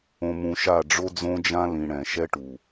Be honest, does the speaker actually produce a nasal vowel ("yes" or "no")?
yes